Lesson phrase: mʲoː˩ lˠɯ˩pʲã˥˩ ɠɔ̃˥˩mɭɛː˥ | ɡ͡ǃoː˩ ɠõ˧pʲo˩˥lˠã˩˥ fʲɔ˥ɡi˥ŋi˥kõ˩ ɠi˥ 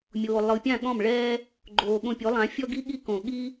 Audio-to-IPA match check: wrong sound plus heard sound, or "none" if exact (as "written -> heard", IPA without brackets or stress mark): ŋ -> ɠ